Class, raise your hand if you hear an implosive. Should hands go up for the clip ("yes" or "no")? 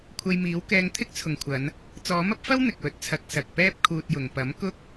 no